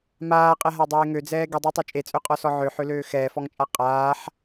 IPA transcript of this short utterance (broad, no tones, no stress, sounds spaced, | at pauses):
m aː qʼ ɛ ɦ a dˤ eː ŋ ø d͡z ɛː ɡ i dˤ a tˤ ø t͡ʃʼ e t͡sʼ ø qʼ ɔ s ɔ ʕ ø ħ ø l øː x ɛː f ɔ ŋ t͡ʃʼ a qʼ aː ħ